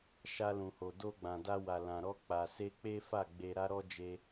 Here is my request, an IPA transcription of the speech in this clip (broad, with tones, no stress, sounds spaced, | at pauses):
ʃ a˧ l ũ˨ h o˨ d o˧ ɡ͡b ã˨ d a˧ w a˨ l ã˨ ɾ ɔ˧ k͡p a˨ s e˧ k͡p e˦ f a˦˨ ɡ͡b e˧ ɾ a˦ ɾ ɔ˦ d͡ʒ e˧